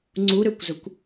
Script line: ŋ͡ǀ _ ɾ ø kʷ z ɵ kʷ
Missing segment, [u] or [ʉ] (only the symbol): u